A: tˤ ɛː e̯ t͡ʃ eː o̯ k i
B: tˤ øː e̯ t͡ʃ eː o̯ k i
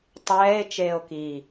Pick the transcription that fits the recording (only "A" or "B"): A